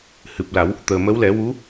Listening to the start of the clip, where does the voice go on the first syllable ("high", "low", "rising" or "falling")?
low